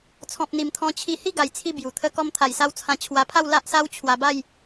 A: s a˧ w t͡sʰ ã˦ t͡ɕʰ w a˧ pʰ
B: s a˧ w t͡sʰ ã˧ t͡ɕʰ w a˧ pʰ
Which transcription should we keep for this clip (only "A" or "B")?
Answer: B